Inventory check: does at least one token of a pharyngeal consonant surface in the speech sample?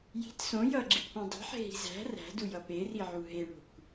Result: yes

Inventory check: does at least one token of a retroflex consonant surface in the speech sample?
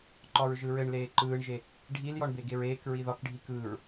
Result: yes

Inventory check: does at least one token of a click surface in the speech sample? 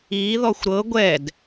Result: no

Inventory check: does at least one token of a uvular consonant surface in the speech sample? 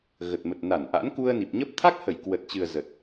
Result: no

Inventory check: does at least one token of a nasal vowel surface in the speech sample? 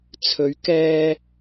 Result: no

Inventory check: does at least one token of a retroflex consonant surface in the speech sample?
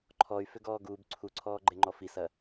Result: no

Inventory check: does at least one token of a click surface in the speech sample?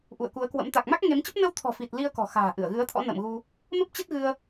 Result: no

